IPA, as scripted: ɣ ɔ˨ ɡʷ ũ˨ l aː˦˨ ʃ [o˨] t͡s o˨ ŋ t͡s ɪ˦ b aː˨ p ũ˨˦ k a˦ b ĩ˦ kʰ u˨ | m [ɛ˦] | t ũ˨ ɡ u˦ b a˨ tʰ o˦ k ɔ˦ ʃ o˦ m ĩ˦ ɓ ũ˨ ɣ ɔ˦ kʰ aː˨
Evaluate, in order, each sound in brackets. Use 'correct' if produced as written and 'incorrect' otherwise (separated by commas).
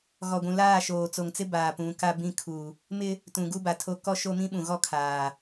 incorrect, incorrect